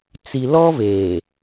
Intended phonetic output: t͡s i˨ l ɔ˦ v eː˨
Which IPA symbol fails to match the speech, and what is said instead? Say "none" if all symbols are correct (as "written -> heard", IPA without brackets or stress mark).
none